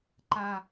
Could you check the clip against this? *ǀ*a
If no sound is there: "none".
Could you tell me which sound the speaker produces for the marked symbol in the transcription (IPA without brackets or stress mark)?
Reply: ǃ